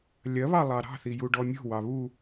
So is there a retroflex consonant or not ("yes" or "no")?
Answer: yes